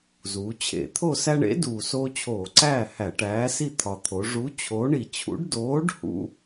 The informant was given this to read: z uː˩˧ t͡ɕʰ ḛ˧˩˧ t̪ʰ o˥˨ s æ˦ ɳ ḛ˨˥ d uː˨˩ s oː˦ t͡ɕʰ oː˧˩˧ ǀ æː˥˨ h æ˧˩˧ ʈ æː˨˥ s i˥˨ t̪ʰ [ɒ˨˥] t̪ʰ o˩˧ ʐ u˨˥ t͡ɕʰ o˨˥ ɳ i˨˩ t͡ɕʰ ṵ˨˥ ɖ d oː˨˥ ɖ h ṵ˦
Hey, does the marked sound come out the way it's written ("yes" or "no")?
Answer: no